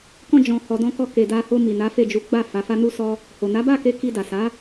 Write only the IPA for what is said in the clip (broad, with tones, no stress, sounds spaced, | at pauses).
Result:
k ɔ̃˧ d͡ʒ ɔ̃˧ h ɔ˨ d ɔ̃˧ k ɔ˧ k e˨ d a˧ h o˧ m i˨ n a˨˦ f e˦˨ d͡ʒ u˨˦ ɡ͡b a˦˨ f a˨˦ f a˦ n u˦ s ɔ˦ | h o˨ n a˨˦ b a˦˨ k e˧ k i˧ d a˨ s a˨˦